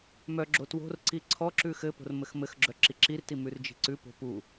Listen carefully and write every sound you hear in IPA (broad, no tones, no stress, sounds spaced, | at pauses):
m œ ɡ͡ǁ o t w o̤ r ǀ i ǀʰ ɔ ǁ ʉ x ɘ p o̤ r m ɘ x m ɘ x ɡ͡ǁ œ ǁ i ǁ i r t i m ʉ r d͡ʒ i̤ ǀ ʉ p o̤ p u